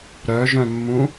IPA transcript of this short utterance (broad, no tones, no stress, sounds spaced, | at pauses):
ɾ œ ʒ œ̃ mː ũ